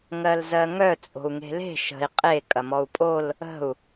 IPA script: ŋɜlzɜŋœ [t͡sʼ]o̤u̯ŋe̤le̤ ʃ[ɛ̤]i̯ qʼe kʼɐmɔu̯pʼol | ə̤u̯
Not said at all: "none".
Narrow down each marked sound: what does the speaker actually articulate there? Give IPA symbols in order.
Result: t͡sʼ, ə̤

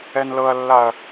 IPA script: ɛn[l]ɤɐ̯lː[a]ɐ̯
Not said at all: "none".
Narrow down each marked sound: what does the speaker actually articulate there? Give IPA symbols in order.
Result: l, a

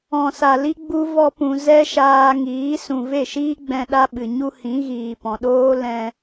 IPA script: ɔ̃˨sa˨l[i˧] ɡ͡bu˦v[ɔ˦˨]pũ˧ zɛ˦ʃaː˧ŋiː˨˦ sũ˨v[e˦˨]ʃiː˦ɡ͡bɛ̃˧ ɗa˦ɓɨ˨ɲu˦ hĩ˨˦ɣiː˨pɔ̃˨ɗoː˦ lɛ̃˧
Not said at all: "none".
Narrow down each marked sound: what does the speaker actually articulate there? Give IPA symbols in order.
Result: i˧, ɔ˦, e˦˨

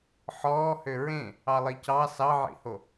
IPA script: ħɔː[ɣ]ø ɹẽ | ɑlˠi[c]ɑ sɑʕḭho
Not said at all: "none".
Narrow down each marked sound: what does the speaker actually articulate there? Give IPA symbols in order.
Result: h, c

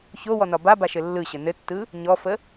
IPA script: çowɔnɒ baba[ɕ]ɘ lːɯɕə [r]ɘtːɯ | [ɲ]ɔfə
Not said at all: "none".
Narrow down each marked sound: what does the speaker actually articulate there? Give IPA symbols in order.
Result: ʃ, n, ɲ

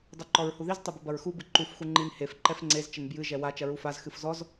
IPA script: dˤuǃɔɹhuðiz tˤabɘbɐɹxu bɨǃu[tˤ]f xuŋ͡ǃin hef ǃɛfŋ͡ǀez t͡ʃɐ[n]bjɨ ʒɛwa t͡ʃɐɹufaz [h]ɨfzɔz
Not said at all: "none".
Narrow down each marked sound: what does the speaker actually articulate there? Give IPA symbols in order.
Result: none, n, x

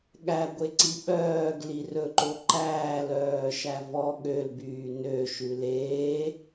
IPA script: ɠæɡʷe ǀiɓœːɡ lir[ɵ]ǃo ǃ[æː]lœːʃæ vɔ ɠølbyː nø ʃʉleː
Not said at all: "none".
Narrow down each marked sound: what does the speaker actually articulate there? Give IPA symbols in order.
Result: ɵ, æː

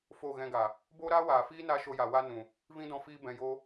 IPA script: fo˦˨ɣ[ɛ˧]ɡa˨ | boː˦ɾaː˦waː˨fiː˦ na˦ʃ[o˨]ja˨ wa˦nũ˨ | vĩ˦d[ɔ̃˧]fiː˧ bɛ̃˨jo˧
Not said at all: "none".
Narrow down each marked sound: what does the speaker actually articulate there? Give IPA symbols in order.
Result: ɛ̃˧, o˧, ɔ̃˧

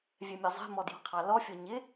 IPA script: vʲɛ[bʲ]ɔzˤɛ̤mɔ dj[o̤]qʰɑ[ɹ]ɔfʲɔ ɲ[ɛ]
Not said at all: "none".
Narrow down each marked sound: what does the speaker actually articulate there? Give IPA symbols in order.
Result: mʲ, ɔ̤, l, ɪ

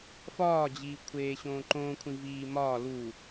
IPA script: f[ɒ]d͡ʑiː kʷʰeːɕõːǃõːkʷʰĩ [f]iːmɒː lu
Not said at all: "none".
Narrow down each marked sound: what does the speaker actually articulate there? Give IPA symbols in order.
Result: ɒː, v

